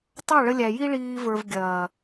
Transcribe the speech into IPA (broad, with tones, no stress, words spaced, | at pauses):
tˤɑ˦˨ɭə˧lʲæ˨ ji˧ɭiː˨və˞˨v ɡʲɐː˨